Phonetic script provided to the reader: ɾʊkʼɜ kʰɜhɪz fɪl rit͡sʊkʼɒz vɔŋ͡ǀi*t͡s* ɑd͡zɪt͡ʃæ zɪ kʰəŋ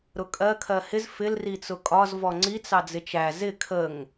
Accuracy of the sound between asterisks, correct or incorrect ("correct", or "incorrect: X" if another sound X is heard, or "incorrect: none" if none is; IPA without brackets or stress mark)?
correct